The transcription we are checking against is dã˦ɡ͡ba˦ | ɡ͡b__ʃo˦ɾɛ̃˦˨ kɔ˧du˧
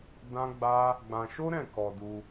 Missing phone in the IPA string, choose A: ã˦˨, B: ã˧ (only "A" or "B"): B